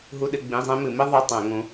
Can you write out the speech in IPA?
ɦ u˥ ɗ ɨ˧˥˧ ɡ͡b ĩ˧˥˧ zˤ ẽ˥ m ɨ˧˩˧ m i˥ ðˤ ø˧˥˧ tˤ ɛ̃˧˩˧ ŋ ũ˨˦

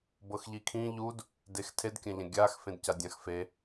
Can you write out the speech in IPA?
b ɤ x ʎ i kʰ ĩ ʎ u d | d e x tʰ e d kʲ ã ʎ ã ɡʲ a x f ẽ d c a dʲ ã x f e

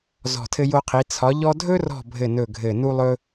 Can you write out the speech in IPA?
z ɔ̤˦˨ tʰ ɘ˥ j o˥ qʰ i˧˥ t͡sʰ ɒ˧˥ ʎ ɔ˥ dʱ ɵ˥ r ɔ̤˦˨ bʱ ɘ˦˨ n ɵ˦˨ ɡʱ ɘ˦˨ n u˥ lˠ ɵ˥

